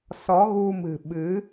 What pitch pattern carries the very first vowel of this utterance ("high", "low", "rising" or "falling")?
rising